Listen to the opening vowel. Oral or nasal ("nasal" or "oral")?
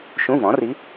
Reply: nasal